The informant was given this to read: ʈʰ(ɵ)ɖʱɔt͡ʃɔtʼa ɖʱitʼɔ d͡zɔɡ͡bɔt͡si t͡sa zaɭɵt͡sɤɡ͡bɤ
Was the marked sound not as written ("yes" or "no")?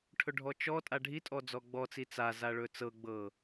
no